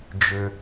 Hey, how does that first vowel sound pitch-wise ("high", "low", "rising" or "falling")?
low